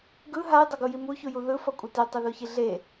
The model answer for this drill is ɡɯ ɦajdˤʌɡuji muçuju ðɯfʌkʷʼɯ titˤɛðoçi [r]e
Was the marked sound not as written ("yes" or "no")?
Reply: yes